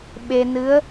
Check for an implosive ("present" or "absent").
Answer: present